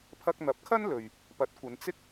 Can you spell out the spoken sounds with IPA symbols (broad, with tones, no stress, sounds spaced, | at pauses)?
pʰ ɐ˧ k̚ n̪ ɐ˨˥ p̚ kʰ ɐ˥ n l ɵ˨ ɥ | p ɐ˨˥ t̚ kʷ ɐ˨˧ n t͡s ɪ˥ k̚